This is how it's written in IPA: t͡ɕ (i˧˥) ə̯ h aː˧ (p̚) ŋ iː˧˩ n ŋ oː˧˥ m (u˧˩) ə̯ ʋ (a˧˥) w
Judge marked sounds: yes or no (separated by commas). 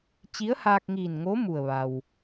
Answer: yes, no, yes, no